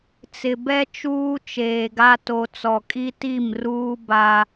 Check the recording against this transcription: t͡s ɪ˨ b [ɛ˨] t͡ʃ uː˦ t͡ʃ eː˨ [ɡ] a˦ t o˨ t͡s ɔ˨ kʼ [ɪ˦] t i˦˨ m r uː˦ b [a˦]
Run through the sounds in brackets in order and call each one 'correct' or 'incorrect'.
incorrect, correct, incorrect, correct

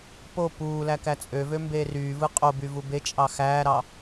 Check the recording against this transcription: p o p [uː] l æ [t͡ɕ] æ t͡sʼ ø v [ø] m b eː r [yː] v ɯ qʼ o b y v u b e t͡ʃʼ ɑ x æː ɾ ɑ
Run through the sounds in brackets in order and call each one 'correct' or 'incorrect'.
correct, incorrect, correct, correct

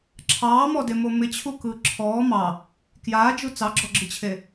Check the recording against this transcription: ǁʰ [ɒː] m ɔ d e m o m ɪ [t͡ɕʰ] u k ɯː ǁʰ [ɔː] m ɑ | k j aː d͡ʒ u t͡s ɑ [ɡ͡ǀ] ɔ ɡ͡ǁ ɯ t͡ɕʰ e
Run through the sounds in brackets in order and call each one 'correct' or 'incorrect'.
incorrect, correct, correct, incorrect

